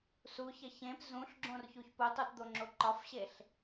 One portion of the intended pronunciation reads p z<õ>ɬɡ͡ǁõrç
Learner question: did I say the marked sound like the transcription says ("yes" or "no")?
no